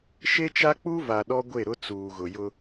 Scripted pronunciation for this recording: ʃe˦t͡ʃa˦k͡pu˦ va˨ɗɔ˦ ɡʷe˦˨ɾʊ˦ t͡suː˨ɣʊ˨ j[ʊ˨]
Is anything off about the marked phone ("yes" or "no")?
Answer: yes